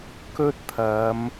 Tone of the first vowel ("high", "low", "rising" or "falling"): high